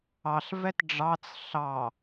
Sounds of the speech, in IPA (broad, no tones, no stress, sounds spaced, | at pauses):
ɑ ɬ v ɛ t ɖ͡ʐ ɑ t͡s ɬ ɑ